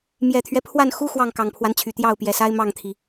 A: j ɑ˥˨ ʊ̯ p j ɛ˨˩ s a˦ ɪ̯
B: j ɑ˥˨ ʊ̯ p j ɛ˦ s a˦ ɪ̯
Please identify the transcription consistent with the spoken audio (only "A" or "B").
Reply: A